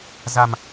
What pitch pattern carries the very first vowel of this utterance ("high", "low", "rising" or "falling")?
low